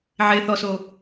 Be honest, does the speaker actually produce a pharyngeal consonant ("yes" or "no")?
yes